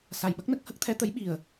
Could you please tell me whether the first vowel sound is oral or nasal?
oral